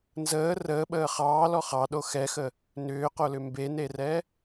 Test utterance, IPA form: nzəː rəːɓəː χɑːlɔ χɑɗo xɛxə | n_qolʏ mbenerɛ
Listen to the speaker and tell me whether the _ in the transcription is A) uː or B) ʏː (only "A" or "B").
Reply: B